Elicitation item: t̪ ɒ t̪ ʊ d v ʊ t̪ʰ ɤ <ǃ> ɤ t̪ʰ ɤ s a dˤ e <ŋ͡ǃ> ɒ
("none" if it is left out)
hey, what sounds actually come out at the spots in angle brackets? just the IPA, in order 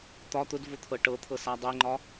ʈ, ŋ͡ǃ

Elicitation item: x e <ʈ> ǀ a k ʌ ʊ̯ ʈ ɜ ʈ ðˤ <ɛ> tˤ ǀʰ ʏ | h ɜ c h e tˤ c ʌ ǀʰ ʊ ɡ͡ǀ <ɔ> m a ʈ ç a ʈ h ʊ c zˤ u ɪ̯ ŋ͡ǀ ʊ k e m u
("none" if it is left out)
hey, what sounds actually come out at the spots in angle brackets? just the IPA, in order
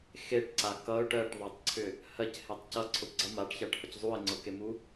ʈ, ɜ, ʌ

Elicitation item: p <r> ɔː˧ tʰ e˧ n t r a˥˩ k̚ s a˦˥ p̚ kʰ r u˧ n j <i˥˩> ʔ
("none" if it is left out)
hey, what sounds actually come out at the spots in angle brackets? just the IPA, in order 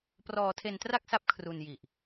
r, i˨˩

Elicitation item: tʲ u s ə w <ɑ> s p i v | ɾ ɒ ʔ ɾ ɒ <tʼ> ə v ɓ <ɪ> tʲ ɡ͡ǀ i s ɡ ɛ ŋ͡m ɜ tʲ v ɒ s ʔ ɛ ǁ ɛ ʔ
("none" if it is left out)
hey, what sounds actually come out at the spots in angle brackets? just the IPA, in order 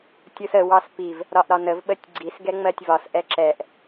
ɑ, n, ə

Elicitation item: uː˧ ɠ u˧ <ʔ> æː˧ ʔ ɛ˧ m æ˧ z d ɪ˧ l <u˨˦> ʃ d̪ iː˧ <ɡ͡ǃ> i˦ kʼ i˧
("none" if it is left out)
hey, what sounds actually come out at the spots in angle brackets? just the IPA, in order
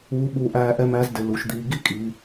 ʔ, u˨˦, ɡ

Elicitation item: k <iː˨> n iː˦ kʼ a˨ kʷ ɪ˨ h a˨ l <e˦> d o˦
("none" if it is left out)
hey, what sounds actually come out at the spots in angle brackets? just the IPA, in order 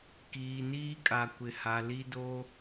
iː˨, i˦

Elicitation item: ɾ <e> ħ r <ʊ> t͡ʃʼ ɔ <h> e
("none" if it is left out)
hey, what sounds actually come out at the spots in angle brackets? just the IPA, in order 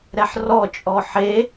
ɛ, ɔ, ħ

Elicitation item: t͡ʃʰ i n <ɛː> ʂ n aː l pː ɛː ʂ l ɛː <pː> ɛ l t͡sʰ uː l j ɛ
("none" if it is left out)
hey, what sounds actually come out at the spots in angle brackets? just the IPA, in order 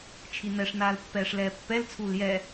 ɛ, pː

